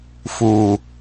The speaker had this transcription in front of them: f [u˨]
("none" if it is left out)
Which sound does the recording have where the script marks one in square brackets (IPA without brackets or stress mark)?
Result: u˨